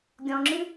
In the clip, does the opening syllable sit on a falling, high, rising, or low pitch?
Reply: low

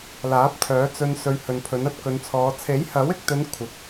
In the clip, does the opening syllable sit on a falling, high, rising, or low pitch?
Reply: rising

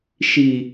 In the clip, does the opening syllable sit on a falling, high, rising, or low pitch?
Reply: low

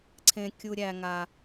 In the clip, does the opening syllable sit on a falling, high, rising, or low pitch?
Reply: low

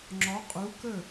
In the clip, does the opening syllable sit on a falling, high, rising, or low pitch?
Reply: rising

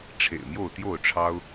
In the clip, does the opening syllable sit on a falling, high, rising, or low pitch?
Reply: low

